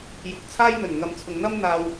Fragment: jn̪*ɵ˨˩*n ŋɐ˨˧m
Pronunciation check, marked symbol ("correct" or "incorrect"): correct